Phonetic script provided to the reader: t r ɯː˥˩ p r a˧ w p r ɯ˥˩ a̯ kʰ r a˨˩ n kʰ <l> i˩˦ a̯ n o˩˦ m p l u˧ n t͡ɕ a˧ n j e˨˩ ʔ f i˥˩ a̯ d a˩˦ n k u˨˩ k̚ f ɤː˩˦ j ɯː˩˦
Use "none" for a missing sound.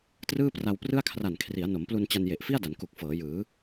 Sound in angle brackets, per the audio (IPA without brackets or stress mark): r